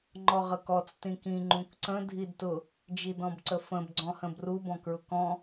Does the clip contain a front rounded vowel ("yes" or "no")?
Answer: no